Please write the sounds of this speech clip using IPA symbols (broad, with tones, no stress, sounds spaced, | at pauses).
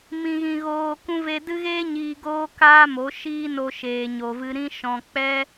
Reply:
m ĩ˨ ɣ ĩ˨ ɣ oː˨ k ũ˧ v e˧ d ɨ˦ ɣ eː˦ ɲ iː˧ ɡ oː˦ k aː˦ m o˨˦ ʃ iː˦ n o˧ ʃ eː˨ ɲ o˨ v ɨ˧ ɾ ĩ˦ ʃ ɔ̃˧ k͡p ɛ˦